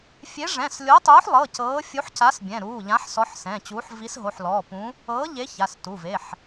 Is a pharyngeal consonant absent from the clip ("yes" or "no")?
no